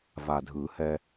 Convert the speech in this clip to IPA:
va˨˩dʱɯ˨˩˦hɛ˧

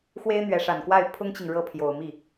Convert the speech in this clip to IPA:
xwe˥ɪ̯n̪ɥɛ˧˥ʂa˨˩nkwa˥˩ɪ̯ pʰʊ˥ŋt͡ɕi˨ŋ ɻɤ˥˩pʰjo˨˩ʊ̯ mi˥˩

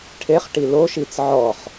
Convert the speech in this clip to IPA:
ʈʰeχʈi loʃit͡s ʕɔχ

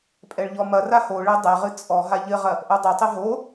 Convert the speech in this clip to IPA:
pʼɛɭʎɔmɐra hoɭɛ dˤɛʁɨ t͡sʼɔɦa ʎɘʁɐ | ʔodˤɘtˤɘ ɦo

